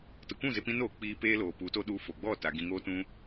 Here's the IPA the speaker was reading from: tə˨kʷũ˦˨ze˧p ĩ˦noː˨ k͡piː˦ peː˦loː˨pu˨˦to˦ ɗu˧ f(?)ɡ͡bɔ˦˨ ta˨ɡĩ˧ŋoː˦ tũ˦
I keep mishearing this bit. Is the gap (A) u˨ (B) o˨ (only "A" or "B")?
B